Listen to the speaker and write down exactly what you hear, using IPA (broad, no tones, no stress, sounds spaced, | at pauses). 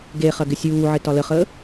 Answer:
ɡ e χ ɐ ɡ ɪ sʲ uː ʕ ɪ t ɒ l ə χ əː